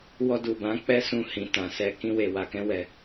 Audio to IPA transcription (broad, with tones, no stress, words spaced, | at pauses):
wɔ˧du˨bã˨˦ k͡pɛ˦sũ˧ hĩ˨tã˨sɛ˧ kĩ˧we˨ wa˧kɛ̃˦wɛ˧